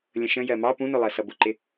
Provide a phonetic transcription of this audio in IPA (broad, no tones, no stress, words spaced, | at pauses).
lʲə̃ʃə̃ jɜmɑ pũnʊlˠɜ sʌbʊǃɪ